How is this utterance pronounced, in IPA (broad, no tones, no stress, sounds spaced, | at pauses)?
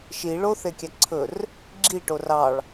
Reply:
ʃ i ɭ o θ e kʲ æ ǀʰ ɵ r | ɡ͡ǁ i ʈ o r ɑ ɭ